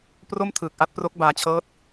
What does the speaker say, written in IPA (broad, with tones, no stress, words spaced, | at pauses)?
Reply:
pro˥˩mtʰɯː˨˩k̚ ʔa˦˥t̚pro˦˥k̚baː˧t͡ɕʰɤː˦˥t̚